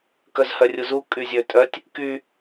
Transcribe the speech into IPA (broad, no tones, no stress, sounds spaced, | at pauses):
k œ z h œ rʲ u z u kʼ y zʲ ø tʼ œ tʲ | k y